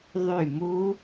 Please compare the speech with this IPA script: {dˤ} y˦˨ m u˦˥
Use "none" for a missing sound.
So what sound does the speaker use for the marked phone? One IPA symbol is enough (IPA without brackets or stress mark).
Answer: ðˤ